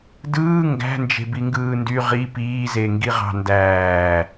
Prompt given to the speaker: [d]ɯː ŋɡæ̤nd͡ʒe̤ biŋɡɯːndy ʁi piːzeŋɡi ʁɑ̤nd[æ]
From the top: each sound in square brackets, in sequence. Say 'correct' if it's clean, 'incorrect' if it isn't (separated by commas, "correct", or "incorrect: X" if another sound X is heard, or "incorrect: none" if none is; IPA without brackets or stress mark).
correct, incorrect: æː